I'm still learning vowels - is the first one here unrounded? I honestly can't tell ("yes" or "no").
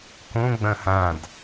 no